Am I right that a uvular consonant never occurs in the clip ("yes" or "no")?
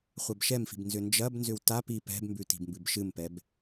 no